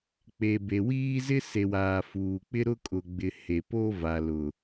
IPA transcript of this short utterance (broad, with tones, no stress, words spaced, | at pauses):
k͡pe˨be˨wiː˦zɪ˦ se˨waː˨ fuː˨k͡pɪ˦ɾʊ˦ kʼʊ˨ɡ͡bɪ˨ he˨po˦ va˨lʊ˨